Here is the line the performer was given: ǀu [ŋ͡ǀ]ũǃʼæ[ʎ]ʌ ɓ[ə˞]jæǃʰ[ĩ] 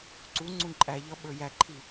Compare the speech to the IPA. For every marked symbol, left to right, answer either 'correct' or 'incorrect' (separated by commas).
correct, correct, correct, incorrect